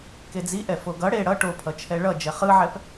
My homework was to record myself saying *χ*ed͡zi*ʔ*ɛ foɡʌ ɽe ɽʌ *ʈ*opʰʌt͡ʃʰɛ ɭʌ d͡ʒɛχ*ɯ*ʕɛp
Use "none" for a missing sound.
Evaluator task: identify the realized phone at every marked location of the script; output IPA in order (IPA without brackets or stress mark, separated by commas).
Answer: k, ʔ, ʈ, ɯ